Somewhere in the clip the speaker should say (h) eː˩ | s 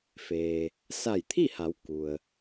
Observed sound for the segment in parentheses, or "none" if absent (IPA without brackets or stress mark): f